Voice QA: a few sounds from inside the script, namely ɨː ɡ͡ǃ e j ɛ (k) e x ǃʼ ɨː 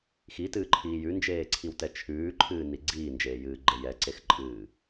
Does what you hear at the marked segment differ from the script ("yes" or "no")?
yes